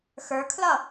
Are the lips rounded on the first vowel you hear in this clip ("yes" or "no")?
no